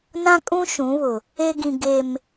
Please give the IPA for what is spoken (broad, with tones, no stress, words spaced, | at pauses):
nã˦kʼũ˦ ʃũ˨˦βʊ˨ | e˦ɡĩ˨ ɡe˨m